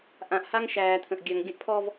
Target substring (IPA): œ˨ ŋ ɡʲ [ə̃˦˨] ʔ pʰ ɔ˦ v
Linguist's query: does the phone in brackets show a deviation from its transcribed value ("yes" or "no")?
yes